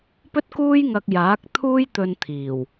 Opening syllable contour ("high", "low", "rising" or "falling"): high